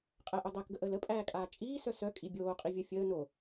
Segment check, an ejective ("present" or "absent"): present